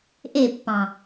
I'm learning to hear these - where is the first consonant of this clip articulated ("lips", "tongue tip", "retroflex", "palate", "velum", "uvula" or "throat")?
throat